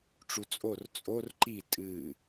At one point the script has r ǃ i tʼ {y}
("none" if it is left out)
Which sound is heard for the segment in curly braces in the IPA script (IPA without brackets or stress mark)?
ɨ